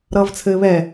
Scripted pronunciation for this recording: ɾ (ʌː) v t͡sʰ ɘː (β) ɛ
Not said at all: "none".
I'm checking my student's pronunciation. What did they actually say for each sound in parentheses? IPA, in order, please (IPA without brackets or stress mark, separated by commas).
ʌː, β